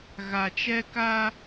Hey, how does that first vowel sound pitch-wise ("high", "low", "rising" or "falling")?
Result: low